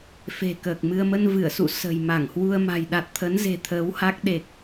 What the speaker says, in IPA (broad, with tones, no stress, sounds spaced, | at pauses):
f e̤˨˩ k əː˨˩ k̚ m ɨ˧ ə̯ m ə˧ n v ɨ˧˩ ə̯ s ṵ˧˨ s ə̤˨˩ j m a˧˩ ŋ h w u˧ ə̯ m a̤˨˩ j ɗ a˨˩ t̚ t̪ʰ ə˨˦ n z e̤˨˩ t̪ʰ əː˨˦ w h a˦˥ k̚ ɗ e˨˩ k̚